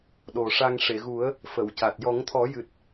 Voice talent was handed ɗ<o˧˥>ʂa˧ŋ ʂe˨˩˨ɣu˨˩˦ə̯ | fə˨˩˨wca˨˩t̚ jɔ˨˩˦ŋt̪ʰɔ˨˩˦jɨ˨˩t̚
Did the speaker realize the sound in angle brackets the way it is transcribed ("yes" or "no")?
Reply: no